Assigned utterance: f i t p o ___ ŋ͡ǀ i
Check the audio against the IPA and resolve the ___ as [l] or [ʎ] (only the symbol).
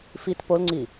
l